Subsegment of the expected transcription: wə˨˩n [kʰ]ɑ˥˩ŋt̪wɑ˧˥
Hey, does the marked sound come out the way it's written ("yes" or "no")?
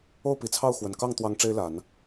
no